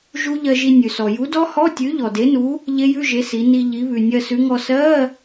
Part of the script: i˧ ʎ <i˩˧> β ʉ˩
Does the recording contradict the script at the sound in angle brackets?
no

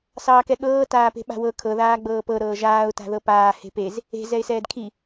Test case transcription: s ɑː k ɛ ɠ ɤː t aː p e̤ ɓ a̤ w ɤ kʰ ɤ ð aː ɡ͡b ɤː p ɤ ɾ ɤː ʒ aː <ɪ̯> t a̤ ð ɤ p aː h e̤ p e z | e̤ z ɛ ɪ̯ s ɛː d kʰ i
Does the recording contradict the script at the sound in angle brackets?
yes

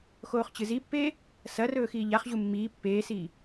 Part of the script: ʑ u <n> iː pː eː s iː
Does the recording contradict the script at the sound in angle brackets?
yes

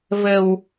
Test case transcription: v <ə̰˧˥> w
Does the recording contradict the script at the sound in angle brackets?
yes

